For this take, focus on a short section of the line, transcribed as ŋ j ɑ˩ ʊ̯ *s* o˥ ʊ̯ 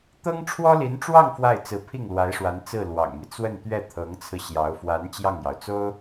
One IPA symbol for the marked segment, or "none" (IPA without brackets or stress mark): t͡s